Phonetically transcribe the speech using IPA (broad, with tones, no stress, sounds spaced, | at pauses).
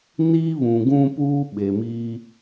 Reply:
n iː˦ β ũ˨ ɡ ũ˦ p uː˦ ɓ e˨ m iː˦